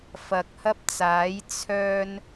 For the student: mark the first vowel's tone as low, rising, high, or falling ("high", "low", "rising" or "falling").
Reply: low